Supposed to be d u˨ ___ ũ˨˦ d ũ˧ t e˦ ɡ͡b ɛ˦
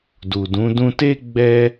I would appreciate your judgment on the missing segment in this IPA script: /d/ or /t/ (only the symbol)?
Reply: d